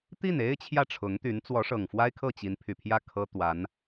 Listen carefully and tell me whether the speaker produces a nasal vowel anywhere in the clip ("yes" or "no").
no